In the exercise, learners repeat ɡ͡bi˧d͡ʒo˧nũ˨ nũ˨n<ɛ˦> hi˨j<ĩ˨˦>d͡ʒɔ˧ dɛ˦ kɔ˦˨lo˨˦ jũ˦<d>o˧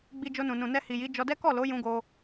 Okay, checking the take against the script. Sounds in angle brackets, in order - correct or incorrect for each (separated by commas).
incorrect, incorrect, incorrect